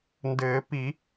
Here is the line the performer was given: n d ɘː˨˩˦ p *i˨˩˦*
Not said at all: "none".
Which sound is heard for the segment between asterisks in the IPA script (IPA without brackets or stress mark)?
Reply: i˨˩˦